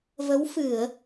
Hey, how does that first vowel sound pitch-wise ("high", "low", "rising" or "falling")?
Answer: rising